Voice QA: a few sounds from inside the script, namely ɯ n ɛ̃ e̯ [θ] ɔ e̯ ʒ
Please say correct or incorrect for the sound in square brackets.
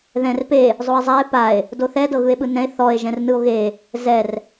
correct